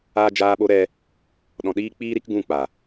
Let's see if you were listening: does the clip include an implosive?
yes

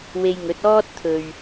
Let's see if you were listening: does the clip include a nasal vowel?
no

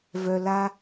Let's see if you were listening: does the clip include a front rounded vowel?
yes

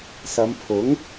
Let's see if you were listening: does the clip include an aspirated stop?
yes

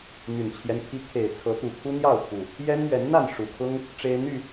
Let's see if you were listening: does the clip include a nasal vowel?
no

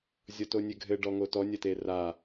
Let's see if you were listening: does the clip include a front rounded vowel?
no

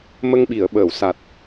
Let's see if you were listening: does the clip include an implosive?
yes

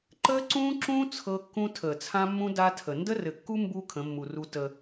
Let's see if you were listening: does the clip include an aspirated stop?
yes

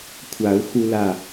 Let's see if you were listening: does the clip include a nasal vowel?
no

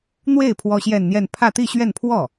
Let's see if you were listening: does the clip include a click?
no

